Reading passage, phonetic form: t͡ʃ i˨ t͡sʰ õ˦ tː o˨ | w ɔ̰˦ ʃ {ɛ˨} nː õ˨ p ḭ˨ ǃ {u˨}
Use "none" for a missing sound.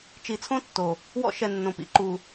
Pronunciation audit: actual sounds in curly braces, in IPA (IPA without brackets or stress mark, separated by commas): ɛ˨, u˨